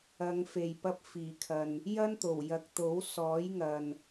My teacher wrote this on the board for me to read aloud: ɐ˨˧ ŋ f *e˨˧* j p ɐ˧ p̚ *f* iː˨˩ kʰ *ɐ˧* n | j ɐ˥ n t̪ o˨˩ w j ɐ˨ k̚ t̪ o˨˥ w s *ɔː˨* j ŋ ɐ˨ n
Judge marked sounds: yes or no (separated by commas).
no, yes, no, no